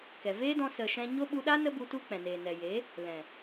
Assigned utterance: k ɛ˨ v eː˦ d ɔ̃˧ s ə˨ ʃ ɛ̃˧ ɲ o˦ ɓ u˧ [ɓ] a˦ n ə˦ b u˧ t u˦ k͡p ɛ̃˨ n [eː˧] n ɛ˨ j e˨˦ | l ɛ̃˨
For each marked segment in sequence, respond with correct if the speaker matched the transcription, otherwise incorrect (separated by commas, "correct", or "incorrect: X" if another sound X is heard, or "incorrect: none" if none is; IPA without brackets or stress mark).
incorrect: ɗ, incorrect: eː˨